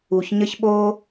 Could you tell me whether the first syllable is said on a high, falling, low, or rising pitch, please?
low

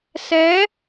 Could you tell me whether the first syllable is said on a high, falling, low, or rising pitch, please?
rising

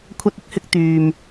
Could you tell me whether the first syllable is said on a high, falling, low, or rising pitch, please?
high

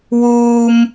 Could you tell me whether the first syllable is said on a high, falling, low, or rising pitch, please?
high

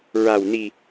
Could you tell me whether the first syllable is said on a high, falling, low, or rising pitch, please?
low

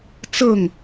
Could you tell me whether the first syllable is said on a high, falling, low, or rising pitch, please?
falling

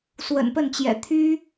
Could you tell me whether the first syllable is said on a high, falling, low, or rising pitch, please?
low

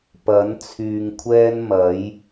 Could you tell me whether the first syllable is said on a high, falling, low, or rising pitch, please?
rising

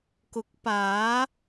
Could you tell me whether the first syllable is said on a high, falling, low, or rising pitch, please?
rising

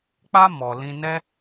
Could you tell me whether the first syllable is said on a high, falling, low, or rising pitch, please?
high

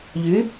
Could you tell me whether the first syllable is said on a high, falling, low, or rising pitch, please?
rising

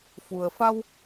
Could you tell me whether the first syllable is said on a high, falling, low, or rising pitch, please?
low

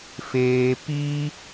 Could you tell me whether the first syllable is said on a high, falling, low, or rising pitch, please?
low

